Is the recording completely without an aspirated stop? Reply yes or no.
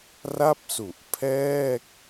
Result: no